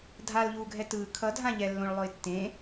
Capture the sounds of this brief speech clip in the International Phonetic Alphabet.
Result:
dʱ a l ʎ uː ɡʱ ɛ t ɯː kʰ ʌ dʱ ã ʎ ɛ lː õ ɭ lˠ o ɪ̯ tː ẽ

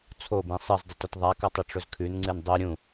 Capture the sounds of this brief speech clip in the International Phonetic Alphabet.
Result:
t͡sʰ o b ĩ sˤ ɨ z dˤ ʉ t ɵ t ðˤ a k ɐ tˤ i ʈ͡ʂ ɵ z kʰ ʉ n ŋ͡ǀ ɨ n dˤ u ɾʲ ũ

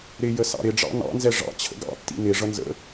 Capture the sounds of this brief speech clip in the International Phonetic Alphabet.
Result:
ɾ ɪ j ə s ɑ̰ ɾ ɪ ɖ͡ʐ ɑ̰ n ɑ̰ n z ɛ ʐ ɑ̰ t͡ɕʰ ə̰ ɡ ɑ̰ tː ḭ n ɪ ʐ ʌ n z ə̰

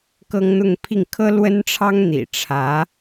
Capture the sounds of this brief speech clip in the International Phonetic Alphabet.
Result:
k ɤ˥ ŋ n̪ ʊ˥˧ ŋ pʰ i˥˩ ŋ kʰ ɤ˥ l w ə˥ n ʈ͡ʂʰ ɑ˥ ŋ n̪ ḭ˨˩ ʈ͡ʂʰ ä˧˥

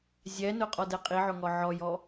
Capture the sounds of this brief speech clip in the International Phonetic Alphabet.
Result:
zʲ ɛ n ʊ qʼ ɔ d ɛ qʼ i ʕ ʊ ŋ ɔ ʕ ɔ j ɔ

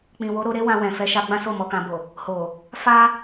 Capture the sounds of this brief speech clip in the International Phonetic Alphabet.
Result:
k͡p ĩ˨ w o˨˦ ɾ o˧ ɾ e˦ w ã˧ w ɛ̃˨ f ɛ˨˦ ʃ a˧ ɡ͡b ã˦ s o˦˨ m ɔ˧ k ã˧ b o˨ | h o˨ | f a˦

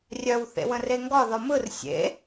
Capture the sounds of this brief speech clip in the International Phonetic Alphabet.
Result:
rʲ œ w θ ḛ w ə̃ r e ŋ ɡ ɒ ð ɒ m ɯ r sʲ ḛ

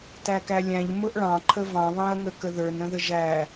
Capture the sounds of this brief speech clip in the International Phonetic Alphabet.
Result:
t æ k æ lʲ æ̃ ʎ m ʊ ʔ ɭ ɑ̃ ǃʰ ə v ɑ̃ β ɑ̃ ɐ̯ ŋ ə k ə ð ə˞ n ɾ ə̃ ð ə ʒ æ

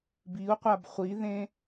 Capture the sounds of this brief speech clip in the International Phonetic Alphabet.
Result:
b i u̯ qʷ a b χʷ i ð ẽ

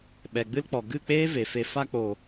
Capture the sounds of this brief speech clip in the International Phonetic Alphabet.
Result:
ɓ ɛ˨ ɡ͡b ɨ˦ l k͡p ɔ˨ ɡ ɨ˦˨ k͡p eː˦ v e˨ f e˧ f a˧ k͡p o˨

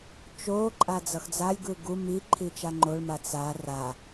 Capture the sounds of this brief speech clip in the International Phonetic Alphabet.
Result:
t͡ʃ o ǃʼ a d͡z ʌ x d͡z a lʲ ɡ ɯ ɡ u m i ǃʰ i t͡ʃ a ŋ͡ǃ o ɭ m a t͡s a r a

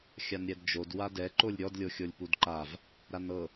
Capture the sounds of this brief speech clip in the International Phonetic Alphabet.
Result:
xʲ a n ɾʲ ɛ d d͡ʒ o d w a d ɛ ǃ o lʲ ɾʲ ɔ d lʲ o xʲ o lʲ p u d ǃ a v | ɾ a n ɤ

